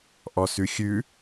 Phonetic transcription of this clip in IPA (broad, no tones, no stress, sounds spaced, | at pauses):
ʔ ɔ s ʉ xʲ ʉ